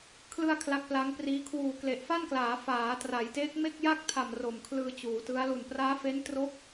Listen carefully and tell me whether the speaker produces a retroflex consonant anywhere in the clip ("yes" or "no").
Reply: no